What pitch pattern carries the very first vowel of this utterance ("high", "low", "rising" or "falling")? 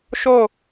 falling